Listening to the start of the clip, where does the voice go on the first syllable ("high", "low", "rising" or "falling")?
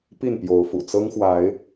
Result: falling